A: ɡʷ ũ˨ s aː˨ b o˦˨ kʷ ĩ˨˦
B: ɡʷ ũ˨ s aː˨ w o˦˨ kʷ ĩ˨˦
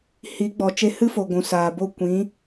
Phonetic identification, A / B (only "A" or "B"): A